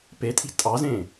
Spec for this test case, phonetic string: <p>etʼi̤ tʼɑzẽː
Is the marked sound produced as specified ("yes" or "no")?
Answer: yes